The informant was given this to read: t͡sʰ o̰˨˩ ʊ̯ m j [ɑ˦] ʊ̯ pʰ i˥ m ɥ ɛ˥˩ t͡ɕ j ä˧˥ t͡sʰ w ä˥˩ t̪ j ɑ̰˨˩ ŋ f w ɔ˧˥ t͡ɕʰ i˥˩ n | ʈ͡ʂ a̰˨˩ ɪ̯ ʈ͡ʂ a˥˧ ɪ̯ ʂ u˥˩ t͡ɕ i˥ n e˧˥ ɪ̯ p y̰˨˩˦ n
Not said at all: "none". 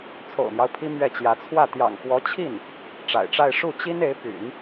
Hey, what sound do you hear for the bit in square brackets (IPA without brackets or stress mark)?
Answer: ɑ˦